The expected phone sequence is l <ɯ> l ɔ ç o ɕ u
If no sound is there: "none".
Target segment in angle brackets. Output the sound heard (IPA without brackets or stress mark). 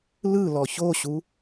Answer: ɯ